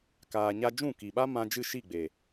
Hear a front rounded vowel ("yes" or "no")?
no